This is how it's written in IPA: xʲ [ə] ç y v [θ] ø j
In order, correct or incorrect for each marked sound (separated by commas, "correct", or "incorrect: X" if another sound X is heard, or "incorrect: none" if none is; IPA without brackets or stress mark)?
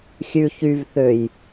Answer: incorrect: ʉ, correct